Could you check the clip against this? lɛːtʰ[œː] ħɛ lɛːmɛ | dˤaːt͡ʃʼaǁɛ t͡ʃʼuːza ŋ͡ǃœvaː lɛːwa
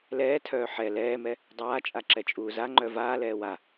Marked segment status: correct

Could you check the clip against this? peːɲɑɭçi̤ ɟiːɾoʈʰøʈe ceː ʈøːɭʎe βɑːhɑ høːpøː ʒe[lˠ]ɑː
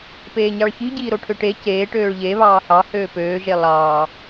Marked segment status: correct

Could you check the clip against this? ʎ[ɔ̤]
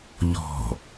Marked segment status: correct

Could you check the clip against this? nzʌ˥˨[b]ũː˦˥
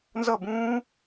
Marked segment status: correct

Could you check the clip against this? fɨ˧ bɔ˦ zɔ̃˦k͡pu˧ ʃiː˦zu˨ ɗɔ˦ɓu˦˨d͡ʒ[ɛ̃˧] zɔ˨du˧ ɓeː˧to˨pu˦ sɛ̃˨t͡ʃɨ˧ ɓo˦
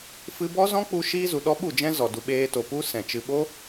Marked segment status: incorrect: ɛ̃˦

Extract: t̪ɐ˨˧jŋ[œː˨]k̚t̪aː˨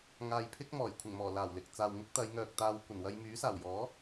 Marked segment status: correct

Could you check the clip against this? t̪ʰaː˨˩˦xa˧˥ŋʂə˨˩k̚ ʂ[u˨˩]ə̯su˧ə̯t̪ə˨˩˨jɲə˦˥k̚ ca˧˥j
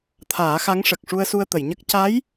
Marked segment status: incorrect: u˧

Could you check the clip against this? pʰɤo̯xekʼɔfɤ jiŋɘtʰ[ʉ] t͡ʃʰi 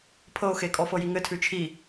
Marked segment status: correct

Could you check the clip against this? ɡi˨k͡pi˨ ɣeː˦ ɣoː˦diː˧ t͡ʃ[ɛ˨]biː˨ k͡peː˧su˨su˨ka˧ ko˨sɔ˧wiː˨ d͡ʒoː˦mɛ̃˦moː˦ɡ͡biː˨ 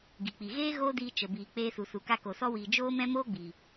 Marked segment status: incorrect: ə˨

